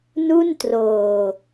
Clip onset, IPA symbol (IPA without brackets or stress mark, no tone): n